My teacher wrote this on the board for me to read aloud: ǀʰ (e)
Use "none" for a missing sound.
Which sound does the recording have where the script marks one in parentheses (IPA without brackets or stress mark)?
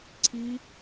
i